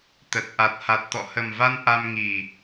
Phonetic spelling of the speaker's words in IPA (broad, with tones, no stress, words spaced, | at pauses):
t̪ə˨˩t̚ ʔa˨˩t̚ha˨˩t̚t̪ɔ̰˧˨ hə˨˩mva˧n ʔa˧m ŋi˨˩